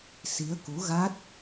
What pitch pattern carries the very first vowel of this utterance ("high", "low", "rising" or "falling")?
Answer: rising